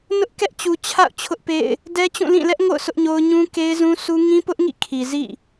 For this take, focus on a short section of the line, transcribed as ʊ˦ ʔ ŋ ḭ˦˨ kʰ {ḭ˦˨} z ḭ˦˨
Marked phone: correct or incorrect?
incorrect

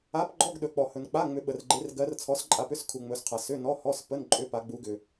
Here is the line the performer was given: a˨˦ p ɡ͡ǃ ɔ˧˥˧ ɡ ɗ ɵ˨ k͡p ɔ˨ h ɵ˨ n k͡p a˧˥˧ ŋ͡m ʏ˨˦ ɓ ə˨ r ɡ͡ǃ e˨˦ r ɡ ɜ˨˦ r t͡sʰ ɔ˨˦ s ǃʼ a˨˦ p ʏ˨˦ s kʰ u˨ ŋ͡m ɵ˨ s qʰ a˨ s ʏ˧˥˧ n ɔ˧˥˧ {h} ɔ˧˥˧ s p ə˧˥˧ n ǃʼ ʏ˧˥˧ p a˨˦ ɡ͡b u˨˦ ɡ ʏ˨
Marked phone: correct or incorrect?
correct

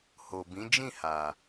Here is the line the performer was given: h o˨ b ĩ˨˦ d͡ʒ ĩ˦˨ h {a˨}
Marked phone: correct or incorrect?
correct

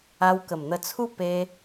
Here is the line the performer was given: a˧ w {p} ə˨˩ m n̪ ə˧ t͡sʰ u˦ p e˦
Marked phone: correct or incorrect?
incorrect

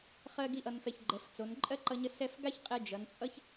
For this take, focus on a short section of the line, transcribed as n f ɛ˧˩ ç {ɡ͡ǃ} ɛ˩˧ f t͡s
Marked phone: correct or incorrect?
correct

